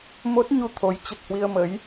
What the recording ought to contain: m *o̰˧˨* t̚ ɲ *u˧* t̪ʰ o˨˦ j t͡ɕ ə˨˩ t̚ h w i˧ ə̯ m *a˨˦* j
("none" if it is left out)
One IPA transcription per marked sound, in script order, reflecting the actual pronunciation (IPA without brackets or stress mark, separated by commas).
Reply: o˦˥, u˧, ə˨˦